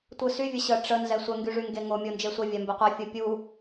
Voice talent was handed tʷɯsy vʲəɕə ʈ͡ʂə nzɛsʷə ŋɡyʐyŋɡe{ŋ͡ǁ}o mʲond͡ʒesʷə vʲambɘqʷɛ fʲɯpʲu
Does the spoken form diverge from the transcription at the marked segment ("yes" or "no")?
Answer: yes